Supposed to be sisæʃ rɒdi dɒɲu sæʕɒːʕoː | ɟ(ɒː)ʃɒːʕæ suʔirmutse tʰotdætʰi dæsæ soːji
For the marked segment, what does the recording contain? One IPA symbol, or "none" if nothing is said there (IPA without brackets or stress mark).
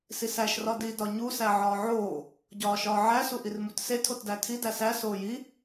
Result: ɒː